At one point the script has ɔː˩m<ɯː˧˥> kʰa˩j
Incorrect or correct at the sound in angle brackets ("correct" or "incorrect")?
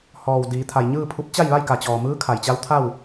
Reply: correct